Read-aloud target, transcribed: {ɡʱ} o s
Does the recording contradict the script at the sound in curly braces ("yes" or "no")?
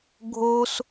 no